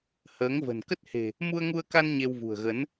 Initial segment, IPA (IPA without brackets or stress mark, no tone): h